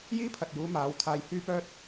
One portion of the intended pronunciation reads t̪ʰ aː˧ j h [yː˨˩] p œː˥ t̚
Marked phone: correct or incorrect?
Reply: incorrect